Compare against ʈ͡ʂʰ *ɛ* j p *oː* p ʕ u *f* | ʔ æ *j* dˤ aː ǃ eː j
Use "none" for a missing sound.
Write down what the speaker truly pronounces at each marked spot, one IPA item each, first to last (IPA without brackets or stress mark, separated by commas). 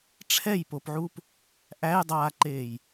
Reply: ɛ, o, p, j